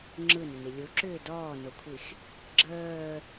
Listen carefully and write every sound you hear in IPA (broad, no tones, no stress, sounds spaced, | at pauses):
ŋ͡ǁ ɯ n ʏ n i lʲ u ǁ ʏː d ɔː n o kʷʰ i x | ɡ͡ǁ əː